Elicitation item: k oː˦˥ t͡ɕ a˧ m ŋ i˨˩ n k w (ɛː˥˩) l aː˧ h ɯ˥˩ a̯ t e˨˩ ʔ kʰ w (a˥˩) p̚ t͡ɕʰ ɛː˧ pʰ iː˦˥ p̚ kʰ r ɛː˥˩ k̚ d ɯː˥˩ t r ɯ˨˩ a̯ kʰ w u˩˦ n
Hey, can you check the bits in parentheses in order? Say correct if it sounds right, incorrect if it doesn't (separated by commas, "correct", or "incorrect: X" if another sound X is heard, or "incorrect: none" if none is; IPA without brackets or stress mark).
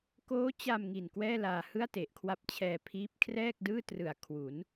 correct, incorrect: a˦˥